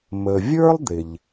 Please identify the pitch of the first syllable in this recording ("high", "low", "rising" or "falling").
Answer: low